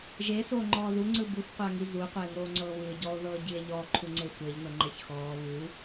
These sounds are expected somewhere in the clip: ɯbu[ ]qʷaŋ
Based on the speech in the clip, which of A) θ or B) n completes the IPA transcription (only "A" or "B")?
A